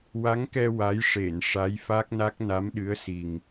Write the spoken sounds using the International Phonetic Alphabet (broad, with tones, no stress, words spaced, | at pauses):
wa˧˥ŋkɛ˧ wa˧˥j ʂe˨˩˨n ʂa˧˥jfa˦˥k̚na˦˥k̚na˧˥m ɗɨ˧˥ə̯si˨˩ŋ